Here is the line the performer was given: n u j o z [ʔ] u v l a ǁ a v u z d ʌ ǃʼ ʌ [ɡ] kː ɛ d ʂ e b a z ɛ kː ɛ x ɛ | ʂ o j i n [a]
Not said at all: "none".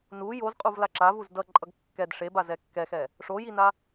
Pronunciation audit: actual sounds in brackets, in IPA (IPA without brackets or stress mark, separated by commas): qʼ, ɡ, a